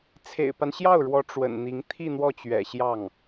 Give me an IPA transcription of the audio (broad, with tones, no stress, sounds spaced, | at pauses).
t͡sʰ ḛ˨˩ ɪ̯ p a˦ n ɕ j ɑ˥˩ ʊ̯ ɻ w ɔ˧˥ ʈ͡ʂ w ə̰˨˩ n n̪ i˧˥ ŋ t̪ʰ i˥˧ n̪ w ɔ˥˩ t͡ɕ ɥ ɛ̰˨˩ ɕ j ɑ˥˩ ŋ